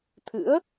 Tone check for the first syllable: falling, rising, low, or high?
rising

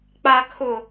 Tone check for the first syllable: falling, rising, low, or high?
low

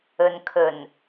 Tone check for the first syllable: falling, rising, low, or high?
low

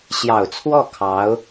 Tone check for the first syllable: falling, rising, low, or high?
low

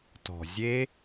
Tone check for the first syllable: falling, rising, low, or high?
low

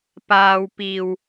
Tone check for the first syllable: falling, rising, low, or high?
low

